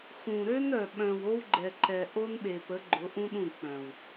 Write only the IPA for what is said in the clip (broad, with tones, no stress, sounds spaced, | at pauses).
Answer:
x ũ˨ ɾ ø˦ n œ˨ ɓ œ̃˨ w o˦ w ɡ͡ǃ ɛ˨ ǃ ɛ˨ ʔ o˦ n ɓ e˨ p ə˨˦ ɡ͡ǃ ʊ˨˦ ʔ ũ˦ ɗ ũ˦˨ k͡p œ̃˨ w